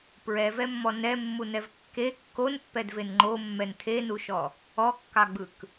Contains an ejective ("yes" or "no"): no